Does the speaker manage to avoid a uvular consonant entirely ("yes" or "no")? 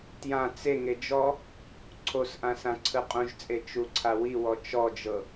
no